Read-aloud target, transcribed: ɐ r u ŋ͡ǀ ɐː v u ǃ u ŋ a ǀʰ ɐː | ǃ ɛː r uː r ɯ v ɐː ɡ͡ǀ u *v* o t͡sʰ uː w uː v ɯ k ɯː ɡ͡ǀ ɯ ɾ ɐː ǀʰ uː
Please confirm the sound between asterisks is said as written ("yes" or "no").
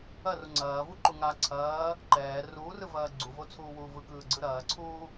yes